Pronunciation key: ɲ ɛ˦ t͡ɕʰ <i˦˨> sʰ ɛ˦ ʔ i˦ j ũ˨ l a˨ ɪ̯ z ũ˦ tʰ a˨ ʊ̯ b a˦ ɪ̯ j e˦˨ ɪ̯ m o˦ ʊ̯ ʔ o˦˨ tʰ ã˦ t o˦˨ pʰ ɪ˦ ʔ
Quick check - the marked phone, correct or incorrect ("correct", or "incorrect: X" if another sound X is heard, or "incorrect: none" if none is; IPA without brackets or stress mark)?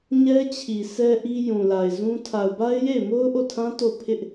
incorrect: i˨